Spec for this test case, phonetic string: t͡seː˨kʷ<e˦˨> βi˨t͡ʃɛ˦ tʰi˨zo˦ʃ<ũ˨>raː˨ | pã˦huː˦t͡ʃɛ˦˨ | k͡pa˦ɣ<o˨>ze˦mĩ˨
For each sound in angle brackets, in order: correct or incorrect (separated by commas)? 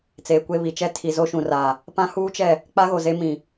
correct, correct, correct